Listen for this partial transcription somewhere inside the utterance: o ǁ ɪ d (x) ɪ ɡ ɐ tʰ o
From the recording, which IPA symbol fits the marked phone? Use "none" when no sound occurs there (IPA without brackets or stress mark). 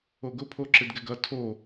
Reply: ɡ